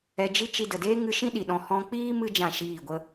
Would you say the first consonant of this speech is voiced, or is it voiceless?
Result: voiced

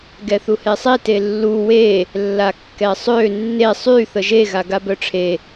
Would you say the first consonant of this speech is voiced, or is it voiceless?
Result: voiced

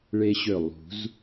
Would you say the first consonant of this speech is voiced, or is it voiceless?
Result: voiced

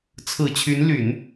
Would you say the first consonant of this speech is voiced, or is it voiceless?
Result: voiceless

